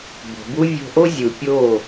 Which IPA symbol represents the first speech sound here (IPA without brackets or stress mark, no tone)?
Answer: b